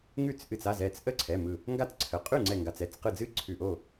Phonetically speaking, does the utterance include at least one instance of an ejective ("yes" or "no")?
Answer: yes